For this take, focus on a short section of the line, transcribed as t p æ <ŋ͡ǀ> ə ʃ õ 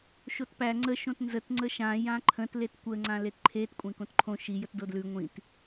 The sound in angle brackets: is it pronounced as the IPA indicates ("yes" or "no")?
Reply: yes